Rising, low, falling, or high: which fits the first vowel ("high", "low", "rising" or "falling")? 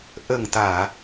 low